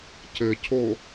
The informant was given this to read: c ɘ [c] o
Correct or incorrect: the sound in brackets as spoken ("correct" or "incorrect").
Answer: incorrect